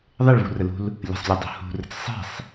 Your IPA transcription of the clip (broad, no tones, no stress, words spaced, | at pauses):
ðˤeɭvṳrəlṳl | lʲə̤sˤlʲudˤṳ hṳrə̤t͡s sˤe̤sˤ